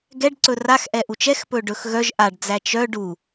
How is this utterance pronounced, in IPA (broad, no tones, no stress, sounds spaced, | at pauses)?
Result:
ɡ ɛ ɖ ǀ ɵ r a x ʔ ɛ ʔ u t͡ʃ ɛ x p ɵ ɖ ɵ x ɣ œ ʒ ʔ a ɖ d͡z æ t͡ʃ œ ɖ u